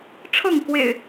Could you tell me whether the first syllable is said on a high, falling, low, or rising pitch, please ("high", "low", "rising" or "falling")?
falling